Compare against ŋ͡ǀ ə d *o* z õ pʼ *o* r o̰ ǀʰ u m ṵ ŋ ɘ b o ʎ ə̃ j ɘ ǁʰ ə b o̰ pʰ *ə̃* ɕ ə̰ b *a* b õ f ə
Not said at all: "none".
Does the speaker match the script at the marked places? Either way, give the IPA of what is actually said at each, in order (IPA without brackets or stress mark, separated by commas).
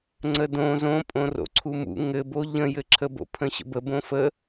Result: õ, õ, ə̃, ə